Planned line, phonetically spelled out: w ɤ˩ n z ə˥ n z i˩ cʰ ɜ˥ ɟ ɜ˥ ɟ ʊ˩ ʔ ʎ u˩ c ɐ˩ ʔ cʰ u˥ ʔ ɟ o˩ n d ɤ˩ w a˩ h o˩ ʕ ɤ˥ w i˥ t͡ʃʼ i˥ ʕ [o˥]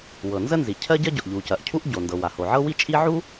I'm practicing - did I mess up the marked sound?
yes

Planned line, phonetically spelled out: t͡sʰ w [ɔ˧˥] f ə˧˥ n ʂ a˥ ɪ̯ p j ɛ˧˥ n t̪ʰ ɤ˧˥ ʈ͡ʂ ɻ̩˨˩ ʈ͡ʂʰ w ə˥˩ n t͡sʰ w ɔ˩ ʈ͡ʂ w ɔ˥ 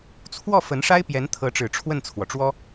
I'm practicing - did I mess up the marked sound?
yes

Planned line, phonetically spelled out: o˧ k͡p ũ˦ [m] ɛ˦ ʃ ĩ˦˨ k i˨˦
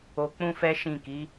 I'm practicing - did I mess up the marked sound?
yes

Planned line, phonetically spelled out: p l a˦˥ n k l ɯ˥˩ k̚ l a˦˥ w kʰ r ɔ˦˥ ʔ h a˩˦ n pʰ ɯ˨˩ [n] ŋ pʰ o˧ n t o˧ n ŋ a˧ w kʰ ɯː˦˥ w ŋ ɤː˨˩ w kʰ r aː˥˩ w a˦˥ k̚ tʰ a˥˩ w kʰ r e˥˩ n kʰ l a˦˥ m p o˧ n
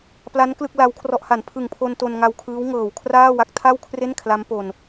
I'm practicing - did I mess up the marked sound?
yes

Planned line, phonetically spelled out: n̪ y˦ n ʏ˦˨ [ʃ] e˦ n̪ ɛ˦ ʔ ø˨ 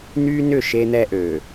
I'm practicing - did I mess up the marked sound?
no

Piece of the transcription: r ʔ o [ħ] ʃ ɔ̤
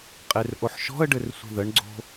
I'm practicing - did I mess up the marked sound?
no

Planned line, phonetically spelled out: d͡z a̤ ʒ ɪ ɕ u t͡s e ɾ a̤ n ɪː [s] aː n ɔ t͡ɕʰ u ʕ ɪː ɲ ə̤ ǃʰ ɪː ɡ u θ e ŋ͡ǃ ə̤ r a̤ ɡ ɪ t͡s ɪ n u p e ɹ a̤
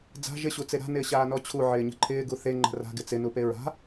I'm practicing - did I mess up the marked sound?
yes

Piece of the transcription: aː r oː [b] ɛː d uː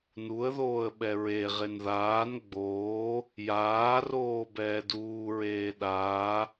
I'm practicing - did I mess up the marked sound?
no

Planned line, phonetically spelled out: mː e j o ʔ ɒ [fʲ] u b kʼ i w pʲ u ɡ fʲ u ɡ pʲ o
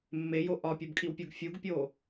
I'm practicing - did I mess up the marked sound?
yes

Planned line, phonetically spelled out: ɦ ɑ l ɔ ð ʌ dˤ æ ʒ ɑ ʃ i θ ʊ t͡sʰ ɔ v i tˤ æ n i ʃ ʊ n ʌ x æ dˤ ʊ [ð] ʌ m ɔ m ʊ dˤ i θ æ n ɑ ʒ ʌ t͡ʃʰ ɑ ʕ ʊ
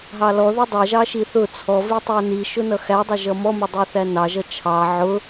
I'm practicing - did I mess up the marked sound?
yes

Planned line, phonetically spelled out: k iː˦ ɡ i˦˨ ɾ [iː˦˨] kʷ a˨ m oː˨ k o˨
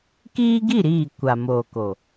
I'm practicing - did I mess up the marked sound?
no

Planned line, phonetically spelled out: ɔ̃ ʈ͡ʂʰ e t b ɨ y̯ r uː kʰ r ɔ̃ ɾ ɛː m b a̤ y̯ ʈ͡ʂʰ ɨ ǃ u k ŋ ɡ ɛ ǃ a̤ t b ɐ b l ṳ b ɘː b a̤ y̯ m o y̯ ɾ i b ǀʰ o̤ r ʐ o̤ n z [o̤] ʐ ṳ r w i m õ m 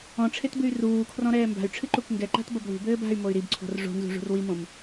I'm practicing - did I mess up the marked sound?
yes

